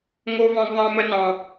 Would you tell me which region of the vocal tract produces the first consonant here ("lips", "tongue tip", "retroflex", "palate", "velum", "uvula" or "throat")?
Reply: velum